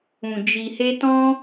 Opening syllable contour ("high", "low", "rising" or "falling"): low